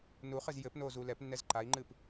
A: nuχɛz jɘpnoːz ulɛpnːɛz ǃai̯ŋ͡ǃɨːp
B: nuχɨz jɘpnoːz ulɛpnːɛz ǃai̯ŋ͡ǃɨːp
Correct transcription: B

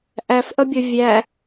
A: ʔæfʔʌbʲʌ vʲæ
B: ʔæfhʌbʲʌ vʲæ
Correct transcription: A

